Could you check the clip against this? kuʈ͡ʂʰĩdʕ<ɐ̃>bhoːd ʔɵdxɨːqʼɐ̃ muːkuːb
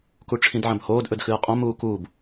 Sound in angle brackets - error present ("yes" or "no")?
no